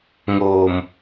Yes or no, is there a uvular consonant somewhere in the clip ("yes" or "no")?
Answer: no